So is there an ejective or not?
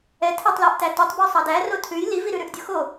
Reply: no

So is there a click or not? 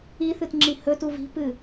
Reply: yes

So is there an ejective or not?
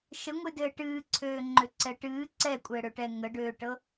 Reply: yes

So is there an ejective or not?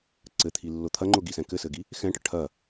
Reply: no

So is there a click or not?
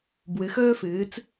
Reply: no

